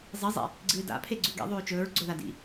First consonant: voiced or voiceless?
voiced